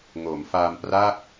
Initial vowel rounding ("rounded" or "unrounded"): rounded